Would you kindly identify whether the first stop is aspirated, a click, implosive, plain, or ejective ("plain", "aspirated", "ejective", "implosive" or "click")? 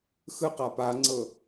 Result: plain